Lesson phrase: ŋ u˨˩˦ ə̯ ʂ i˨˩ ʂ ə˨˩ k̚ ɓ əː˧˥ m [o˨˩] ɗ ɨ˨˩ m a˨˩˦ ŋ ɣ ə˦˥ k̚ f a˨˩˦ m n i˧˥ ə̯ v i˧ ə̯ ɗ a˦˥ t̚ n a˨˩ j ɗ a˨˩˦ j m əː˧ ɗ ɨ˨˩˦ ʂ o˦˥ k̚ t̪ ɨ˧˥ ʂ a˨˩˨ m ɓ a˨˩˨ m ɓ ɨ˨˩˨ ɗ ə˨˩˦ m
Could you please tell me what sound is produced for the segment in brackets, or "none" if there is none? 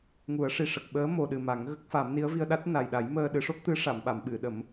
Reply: o˨˩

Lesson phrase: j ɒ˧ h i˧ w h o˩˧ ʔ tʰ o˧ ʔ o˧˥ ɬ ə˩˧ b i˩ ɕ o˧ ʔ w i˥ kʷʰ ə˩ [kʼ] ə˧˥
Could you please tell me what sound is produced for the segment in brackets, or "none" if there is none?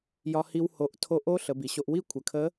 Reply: kʰ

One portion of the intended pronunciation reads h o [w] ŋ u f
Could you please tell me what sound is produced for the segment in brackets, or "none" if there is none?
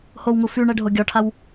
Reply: w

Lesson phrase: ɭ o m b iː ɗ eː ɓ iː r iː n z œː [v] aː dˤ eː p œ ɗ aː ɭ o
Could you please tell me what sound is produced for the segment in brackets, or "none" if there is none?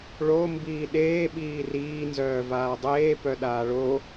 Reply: v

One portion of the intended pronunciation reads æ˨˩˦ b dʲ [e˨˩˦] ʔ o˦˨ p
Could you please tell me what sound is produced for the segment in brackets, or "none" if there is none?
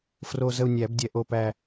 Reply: ɛ˨˩˦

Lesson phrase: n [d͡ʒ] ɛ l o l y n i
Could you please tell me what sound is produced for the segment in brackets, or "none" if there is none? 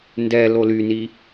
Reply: d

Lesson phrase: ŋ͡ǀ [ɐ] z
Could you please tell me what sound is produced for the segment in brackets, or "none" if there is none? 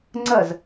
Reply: ɐ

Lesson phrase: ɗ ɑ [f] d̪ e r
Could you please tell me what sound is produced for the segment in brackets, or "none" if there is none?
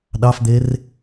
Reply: f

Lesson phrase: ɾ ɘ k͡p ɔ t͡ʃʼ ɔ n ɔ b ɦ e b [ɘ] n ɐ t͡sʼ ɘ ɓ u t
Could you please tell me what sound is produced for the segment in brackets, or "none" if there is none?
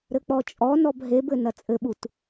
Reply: ɘ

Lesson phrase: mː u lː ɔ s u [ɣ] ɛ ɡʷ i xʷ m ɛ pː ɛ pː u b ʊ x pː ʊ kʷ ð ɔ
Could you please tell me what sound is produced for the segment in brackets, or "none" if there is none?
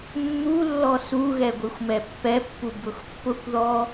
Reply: ɣ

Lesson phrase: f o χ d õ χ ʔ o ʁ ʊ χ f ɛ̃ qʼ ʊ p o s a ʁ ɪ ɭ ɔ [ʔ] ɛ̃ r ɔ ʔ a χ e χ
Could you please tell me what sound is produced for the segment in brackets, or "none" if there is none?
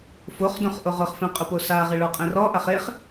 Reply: qʼ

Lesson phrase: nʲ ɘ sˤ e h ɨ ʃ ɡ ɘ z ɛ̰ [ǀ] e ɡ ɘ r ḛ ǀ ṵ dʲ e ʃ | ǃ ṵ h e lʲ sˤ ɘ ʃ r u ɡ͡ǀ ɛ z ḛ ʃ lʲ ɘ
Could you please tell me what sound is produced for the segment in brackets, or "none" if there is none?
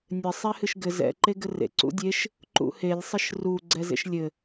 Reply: ǃ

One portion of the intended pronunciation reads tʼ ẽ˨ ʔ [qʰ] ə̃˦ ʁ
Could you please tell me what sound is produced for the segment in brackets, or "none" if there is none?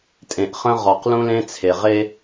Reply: χ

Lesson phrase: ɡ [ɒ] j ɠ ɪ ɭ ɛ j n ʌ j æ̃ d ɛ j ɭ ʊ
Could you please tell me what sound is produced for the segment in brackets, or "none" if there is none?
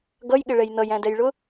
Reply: ʌ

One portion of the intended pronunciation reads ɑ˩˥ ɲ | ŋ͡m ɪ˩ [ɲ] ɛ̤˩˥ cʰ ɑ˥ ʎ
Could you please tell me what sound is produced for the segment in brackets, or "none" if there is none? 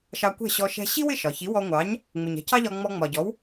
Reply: ɲ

